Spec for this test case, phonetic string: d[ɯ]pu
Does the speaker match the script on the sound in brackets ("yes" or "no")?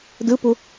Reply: yes